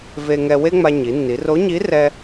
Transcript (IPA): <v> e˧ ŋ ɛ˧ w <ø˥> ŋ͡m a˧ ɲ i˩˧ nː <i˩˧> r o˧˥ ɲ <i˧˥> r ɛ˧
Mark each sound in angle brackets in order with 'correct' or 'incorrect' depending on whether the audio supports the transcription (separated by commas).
correct, incorrect, correct, correct